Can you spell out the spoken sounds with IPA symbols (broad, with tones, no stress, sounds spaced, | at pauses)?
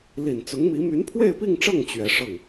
l i˨˩ n t͡s ʊ˧˥ ŋ m i˧˥ m y˧˥ n pʰ w e˥˧ ɪ̯ p i˥˧ ŋ ʈ͡ʂ ɤ˥˩ ŋ t͡ɕ ɥ ɛ˧˥ ʂ ɤ˥˩ ŋ